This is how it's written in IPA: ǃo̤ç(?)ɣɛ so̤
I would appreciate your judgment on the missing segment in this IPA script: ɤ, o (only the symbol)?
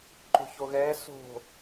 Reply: o